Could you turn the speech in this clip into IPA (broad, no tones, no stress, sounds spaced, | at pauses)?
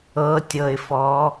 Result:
ɤ tʲ ɤ ɪ̯ f ɔ